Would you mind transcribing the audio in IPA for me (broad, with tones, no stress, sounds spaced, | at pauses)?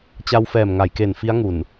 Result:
t͡ɕ a˧ w f ɛː˨˩ m ŋ a˩˦ j k e˨˩ n f i˦˥ a̯ ŋ u˨˩ n